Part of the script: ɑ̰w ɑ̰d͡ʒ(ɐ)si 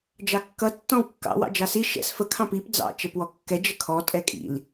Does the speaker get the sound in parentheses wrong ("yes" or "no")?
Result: yes